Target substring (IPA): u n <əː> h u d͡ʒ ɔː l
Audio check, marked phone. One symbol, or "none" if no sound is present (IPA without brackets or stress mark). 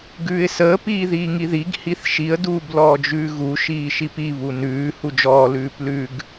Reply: ʉː